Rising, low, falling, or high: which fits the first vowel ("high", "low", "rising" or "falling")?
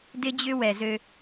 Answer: high